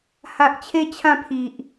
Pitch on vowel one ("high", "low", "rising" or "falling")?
low